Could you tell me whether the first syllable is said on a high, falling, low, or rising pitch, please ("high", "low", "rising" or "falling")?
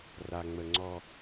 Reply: low